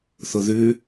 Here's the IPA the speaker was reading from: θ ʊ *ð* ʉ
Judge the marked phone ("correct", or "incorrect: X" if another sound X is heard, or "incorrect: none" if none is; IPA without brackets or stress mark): correct